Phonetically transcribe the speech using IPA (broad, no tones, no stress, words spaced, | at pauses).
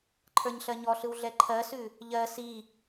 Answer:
ǃʰə˞ɲɬɜɲɔɬɯw ɮɛǃʰɜsʉ | ʎɜ si